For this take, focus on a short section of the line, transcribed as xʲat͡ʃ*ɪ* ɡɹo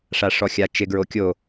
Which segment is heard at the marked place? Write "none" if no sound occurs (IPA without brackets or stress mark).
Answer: ɪ